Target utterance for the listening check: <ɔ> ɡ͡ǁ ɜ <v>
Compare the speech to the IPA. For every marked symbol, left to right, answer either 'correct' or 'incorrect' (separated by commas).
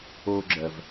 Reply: incorrect, correct